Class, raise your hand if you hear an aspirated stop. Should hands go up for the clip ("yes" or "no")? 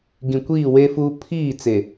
yes